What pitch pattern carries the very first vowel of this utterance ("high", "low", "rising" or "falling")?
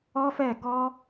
high